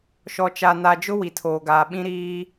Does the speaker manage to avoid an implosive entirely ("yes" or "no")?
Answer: no